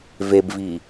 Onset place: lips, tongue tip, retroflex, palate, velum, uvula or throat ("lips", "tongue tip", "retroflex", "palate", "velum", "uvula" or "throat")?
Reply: lips